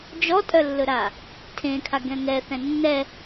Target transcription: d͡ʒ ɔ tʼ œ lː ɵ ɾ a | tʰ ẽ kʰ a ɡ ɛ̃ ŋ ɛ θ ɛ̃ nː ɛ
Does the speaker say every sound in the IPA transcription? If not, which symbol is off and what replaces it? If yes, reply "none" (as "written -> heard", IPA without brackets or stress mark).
none